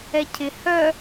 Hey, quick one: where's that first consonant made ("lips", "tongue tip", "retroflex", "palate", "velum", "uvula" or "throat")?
palate